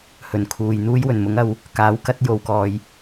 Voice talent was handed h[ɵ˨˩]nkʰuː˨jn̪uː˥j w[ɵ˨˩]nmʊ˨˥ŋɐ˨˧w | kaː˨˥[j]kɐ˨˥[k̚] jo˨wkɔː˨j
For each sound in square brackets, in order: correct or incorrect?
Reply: correct, correct, incorrect: w, incorrect: t̚

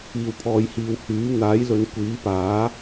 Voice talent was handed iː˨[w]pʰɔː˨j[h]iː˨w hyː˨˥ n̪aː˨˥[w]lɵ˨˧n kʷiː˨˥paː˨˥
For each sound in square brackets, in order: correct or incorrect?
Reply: correct, correct, incorrect: j

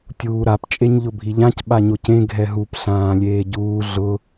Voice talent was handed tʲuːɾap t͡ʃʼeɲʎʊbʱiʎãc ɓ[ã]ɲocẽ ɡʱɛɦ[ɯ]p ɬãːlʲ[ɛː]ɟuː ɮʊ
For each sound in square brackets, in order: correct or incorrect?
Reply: incorrect: a, incorrect: u, incorrect: eː

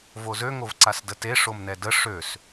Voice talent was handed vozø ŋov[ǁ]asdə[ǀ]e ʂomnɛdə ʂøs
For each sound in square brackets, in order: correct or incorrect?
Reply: incorrect: ǀ, incorrect: t

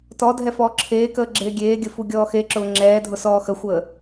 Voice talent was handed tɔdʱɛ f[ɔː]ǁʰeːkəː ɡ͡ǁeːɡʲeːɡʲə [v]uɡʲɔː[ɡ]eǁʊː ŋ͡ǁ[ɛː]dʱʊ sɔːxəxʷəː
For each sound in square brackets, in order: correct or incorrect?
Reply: correct, incorrect: f, incorrect: x, correct

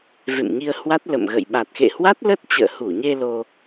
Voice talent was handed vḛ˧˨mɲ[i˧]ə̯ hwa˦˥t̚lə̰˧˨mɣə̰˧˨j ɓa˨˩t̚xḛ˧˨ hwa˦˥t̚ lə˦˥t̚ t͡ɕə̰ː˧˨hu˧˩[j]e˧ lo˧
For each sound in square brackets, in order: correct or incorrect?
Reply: correct, incorrect: ɲ

